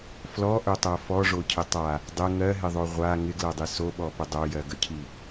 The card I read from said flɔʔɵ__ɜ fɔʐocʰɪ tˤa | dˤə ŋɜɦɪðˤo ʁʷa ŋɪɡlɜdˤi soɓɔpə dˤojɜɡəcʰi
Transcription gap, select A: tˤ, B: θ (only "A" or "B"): A